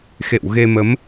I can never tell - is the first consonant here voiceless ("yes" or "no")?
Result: yes